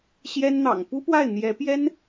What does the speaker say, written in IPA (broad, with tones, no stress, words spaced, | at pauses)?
ɕjɛ˥nn̪ɑ̰˨˩ŋ pu˥pwa˥˩ɪ̯n̪jɛ˧˥pjɛ˥n